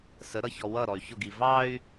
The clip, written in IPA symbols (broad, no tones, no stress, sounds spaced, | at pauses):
s ə ɾ ʌ ç ɔ w ʌ ɾ ɔ y̯ ç ʊ ɡ i v ɑ y̯